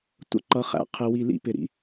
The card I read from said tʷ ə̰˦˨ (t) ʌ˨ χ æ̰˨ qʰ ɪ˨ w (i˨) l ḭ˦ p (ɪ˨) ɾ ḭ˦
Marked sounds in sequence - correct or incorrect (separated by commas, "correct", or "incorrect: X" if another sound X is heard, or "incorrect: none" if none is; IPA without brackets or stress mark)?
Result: incorrect: ǃ, correct, correct